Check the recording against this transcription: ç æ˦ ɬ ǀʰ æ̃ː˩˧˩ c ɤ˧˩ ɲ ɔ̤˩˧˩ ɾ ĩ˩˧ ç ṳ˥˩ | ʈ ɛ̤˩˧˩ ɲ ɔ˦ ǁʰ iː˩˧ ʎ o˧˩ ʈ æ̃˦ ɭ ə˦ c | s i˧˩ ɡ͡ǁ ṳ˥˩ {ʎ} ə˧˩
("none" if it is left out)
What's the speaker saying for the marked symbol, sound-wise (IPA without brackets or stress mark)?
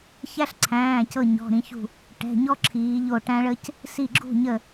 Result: ɲ